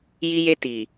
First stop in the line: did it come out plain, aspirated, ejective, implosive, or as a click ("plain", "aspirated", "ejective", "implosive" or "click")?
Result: plain